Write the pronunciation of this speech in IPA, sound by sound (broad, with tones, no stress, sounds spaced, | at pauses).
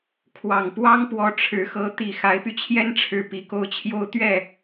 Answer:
kʰ w ɑ˨˩ ŋ p w ɑ˥ ŋ p w ɔ˧˥ ʈ͡ʂʰ ɻ̩˧˥ x ɤ˧˥ t̪ i˨˩ x a˧˥ ɪ̯ p y˧ t͡ɕʰ j ɛ˥ n ʈ͡ʂʰ ɻ̩˧˥ p i˧˥ k o˥˩ ʊ̯ t͡ɕʰ j o˥ ʊ̯ t̪ ɥ ɛ˥˩